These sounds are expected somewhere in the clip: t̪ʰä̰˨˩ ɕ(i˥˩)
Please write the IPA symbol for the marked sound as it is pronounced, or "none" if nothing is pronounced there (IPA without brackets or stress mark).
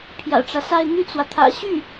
y˥˩